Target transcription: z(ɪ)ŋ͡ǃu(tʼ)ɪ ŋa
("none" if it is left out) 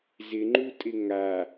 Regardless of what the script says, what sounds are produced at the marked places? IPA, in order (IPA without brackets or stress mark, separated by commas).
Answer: ɪ, tʼ